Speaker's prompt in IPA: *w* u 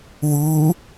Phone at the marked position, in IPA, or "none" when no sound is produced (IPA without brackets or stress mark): w